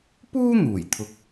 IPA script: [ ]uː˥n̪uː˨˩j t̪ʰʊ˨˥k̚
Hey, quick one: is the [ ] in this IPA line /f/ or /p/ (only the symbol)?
p